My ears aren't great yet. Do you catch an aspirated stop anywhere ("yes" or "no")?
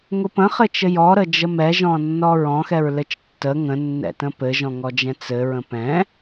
no